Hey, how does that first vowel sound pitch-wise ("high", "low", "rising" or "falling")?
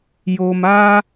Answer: low